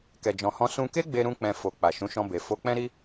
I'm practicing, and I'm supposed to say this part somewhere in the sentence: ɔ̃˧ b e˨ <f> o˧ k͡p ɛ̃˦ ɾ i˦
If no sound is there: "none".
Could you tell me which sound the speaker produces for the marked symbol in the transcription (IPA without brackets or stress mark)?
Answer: f